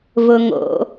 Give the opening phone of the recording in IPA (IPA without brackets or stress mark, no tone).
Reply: v